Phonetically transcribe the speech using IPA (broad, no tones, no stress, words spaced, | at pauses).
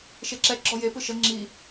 ʃeǁɛ ɡ͡ǁɔje pɯʃə ŋ͡ǁi